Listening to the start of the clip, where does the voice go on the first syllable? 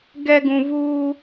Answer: low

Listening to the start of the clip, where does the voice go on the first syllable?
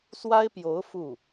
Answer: high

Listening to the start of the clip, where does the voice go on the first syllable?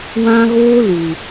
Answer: high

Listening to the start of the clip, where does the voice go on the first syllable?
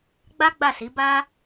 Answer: high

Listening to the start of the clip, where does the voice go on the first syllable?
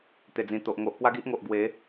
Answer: low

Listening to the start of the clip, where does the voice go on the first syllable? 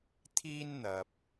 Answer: high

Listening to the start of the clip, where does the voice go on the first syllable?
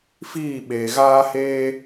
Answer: falling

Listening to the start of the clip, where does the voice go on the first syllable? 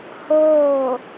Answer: falling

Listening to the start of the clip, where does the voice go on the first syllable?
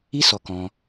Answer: high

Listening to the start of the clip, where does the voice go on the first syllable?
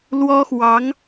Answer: high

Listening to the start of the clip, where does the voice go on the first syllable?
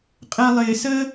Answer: low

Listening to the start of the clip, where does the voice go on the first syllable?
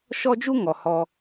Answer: high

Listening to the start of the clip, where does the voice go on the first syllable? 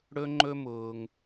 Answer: high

